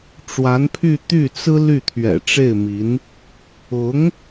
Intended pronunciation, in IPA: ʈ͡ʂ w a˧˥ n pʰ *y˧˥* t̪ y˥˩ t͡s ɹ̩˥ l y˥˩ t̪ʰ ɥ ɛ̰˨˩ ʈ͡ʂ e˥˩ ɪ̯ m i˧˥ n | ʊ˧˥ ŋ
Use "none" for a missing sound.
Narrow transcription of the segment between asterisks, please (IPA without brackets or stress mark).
y˥˧